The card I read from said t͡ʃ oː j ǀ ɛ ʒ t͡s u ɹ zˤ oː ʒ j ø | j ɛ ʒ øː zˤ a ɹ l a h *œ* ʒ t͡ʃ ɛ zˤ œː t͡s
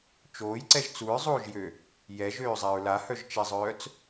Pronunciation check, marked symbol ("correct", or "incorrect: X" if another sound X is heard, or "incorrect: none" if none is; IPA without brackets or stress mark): correct